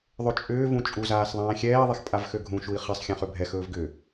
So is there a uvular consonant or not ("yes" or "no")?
yes